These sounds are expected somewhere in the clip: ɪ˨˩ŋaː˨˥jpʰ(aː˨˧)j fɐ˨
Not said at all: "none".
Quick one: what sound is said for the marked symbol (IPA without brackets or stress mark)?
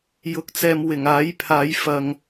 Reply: aː˨˧